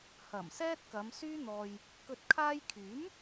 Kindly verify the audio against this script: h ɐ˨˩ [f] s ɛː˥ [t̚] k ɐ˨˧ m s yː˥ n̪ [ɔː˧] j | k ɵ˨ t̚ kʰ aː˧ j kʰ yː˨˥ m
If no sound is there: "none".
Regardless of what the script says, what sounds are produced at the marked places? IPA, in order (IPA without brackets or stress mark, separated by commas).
m, t̚, ɔː˧